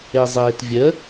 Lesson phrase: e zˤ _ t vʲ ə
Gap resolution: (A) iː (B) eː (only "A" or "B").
B